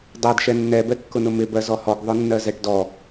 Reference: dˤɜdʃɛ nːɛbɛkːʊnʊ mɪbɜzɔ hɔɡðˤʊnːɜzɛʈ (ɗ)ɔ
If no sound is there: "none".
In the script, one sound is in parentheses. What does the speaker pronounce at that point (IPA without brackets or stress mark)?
d